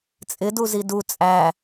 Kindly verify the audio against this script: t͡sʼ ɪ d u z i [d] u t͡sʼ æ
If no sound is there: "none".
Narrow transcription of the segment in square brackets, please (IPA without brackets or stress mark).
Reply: d